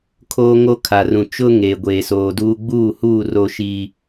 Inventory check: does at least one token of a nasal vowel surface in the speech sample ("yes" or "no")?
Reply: yes